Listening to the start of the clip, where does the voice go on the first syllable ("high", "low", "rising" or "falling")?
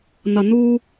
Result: low